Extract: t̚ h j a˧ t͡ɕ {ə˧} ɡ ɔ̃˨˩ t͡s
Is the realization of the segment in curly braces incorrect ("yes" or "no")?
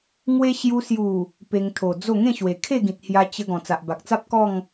no